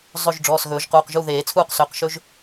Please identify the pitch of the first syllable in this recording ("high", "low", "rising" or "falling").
falling